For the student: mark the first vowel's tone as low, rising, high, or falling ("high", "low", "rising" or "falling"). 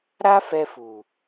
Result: high